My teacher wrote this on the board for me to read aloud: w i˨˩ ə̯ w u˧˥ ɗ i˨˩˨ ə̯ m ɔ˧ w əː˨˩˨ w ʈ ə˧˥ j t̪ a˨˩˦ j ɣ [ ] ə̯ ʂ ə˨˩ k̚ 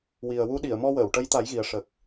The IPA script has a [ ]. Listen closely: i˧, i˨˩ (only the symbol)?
i˨˩